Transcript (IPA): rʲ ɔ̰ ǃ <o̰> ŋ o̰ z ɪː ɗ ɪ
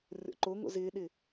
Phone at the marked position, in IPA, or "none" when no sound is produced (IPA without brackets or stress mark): o